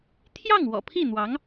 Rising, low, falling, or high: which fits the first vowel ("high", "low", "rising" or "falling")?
falling